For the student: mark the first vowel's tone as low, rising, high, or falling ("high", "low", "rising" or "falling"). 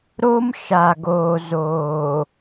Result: high